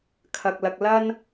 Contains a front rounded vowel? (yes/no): no